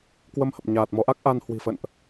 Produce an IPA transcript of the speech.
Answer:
kwə˧mhə˨˩p̚ɲaː˨˩t̚ mɔ˨˦ʔa˦˥k̚ʔa˧n hwi̤˨˩fə̰˧˨nʔ

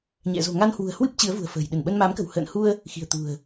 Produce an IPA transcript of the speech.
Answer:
ɲɛ̰˧˨ zo̤˨˩ŋa˧nhwṳ˨˩ə̯hwɨ˦˥p̚ t͡ɕɨ˨˦ə̯vṳ˨˩ə̯fə̤ː˨˩j ɗɨ˧˩nɓə˧nma˨˦mkə̤˨˩w hə̰ː˧˨nhu˧ə̯ | xi̤˨˩ə̯t̪ṳ˨˩ə̯

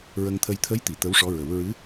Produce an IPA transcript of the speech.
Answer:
ɹə˧ŋt̪ʰə˧j t̪ʰə˧˥jt̪i˨˩˨ t̪ə˧˥wʂɔ˧˥ɹə˨˩˦w ɹɨ˧˥

